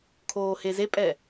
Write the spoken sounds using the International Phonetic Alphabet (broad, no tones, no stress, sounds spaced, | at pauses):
kʰ oː h e z e pʼ ɛ